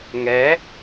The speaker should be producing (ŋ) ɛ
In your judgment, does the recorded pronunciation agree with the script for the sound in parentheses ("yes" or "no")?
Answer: yes